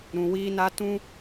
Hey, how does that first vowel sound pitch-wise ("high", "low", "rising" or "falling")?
low